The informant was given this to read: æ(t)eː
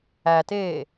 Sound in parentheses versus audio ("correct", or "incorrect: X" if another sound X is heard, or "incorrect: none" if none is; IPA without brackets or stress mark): correct